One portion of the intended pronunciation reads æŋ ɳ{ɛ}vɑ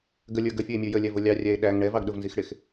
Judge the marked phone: correct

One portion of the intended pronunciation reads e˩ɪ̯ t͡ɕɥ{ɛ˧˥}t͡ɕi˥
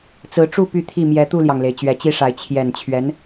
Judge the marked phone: correct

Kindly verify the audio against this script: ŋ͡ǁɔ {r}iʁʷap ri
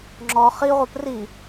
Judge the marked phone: incorrect: χ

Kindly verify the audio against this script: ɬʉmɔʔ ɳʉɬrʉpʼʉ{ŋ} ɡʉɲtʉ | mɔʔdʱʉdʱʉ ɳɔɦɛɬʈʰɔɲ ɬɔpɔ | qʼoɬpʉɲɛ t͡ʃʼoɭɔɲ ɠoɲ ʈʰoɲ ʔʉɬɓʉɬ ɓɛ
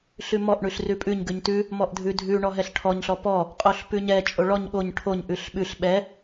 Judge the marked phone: incorrect: ɲ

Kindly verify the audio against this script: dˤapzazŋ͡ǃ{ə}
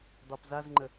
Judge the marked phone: correct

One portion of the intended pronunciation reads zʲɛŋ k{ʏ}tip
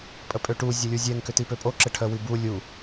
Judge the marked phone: correct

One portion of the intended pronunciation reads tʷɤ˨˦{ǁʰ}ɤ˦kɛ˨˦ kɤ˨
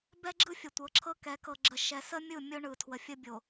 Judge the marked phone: correct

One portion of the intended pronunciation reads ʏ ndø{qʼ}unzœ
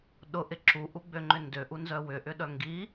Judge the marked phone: incorrect: ʔ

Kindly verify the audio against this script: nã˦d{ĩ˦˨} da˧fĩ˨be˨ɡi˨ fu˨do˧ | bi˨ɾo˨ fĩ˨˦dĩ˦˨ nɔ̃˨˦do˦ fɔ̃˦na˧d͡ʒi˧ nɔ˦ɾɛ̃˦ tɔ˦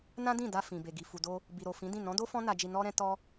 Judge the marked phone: correct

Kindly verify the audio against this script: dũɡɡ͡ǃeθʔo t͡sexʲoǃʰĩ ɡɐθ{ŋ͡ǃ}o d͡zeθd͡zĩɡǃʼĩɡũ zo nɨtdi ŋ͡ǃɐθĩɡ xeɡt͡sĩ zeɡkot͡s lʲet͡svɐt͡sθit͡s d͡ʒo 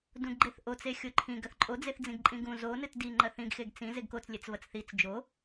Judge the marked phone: incorrect: ǃʼ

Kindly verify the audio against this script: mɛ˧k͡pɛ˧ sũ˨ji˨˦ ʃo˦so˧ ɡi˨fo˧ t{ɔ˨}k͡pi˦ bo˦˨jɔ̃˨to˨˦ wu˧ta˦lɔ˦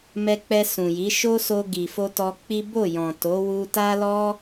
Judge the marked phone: incorrect: ɔ˧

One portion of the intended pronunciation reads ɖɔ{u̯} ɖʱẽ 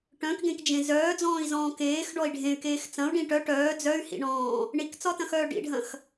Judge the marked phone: incorrect: i̯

